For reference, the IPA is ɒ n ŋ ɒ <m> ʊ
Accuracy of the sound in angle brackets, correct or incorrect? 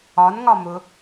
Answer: correct